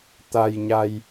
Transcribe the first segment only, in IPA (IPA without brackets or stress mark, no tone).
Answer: t̪